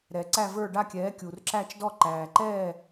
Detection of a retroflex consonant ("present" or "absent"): present